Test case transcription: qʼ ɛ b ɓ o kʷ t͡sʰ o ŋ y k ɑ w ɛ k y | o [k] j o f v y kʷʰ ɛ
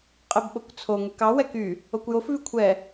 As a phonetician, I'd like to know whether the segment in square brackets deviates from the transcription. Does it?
yes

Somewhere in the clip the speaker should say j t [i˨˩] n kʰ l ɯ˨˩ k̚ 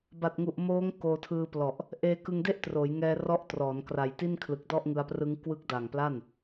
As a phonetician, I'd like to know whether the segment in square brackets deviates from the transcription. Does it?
yes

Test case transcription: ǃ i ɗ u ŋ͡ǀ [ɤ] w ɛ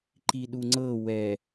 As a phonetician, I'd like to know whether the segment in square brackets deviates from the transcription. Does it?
no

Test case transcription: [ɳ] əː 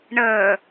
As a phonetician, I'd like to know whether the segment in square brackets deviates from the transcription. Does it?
no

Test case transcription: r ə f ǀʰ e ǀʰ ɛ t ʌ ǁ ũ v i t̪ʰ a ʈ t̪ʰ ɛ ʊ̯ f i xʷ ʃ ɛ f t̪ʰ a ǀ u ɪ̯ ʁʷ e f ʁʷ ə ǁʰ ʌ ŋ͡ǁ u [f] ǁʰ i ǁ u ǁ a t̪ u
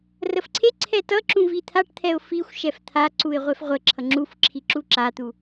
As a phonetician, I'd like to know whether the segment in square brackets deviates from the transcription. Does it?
no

